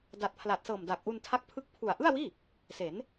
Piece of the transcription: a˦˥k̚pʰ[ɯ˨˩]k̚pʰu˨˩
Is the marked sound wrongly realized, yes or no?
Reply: yes